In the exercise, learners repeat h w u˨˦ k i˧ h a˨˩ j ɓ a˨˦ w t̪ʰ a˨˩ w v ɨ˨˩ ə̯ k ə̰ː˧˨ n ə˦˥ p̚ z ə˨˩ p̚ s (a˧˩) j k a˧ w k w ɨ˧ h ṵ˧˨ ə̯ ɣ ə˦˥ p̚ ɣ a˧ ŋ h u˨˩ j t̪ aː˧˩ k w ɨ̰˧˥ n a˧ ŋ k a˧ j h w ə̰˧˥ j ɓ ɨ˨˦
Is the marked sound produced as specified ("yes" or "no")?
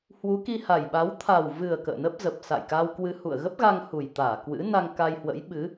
no